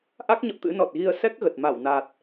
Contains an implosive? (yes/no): no